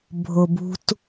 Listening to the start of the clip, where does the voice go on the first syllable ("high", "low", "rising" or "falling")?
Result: low